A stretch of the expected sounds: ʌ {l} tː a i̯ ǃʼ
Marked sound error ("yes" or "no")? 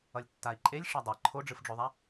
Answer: yes